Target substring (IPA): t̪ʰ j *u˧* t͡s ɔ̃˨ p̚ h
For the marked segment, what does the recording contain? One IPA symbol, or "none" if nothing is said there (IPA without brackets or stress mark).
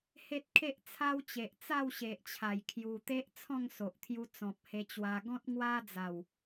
u˧